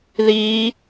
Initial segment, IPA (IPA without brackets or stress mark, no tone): ð